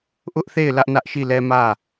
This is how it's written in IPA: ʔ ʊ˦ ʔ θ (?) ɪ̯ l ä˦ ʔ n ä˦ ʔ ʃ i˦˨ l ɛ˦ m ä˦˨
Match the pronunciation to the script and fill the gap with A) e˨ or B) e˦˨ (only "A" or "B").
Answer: B